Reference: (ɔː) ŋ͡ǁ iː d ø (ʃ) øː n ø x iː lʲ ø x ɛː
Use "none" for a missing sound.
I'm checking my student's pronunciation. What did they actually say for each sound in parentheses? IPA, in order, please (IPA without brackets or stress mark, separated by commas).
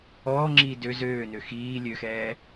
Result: ɔː, z